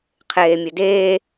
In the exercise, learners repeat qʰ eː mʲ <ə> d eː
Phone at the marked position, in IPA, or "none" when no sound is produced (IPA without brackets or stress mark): ə